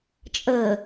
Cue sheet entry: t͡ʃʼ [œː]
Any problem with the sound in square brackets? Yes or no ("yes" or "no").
yes